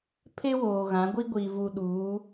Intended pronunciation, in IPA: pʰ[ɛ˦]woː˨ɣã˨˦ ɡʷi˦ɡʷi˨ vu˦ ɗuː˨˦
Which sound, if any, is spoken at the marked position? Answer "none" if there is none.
e˦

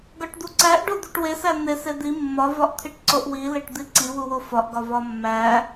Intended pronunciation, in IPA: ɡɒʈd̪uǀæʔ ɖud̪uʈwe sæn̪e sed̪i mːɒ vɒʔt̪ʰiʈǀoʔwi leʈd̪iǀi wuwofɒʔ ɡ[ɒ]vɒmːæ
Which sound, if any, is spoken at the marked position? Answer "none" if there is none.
ɒ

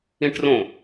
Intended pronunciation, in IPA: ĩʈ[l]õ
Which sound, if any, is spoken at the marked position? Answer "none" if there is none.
r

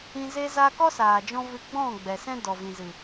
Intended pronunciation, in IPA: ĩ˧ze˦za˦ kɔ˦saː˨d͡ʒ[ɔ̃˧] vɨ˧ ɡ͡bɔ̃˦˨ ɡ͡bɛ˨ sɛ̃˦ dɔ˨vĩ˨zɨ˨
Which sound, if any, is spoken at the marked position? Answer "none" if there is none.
ɔ̃˧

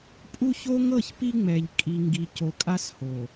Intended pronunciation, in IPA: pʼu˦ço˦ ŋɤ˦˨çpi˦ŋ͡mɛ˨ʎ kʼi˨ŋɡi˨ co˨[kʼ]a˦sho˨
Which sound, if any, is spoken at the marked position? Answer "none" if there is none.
kʼ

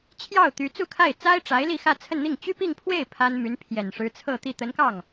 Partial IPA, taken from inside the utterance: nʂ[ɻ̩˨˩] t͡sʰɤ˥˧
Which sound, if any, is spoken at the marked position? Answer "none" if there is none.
ɻ̩˧˥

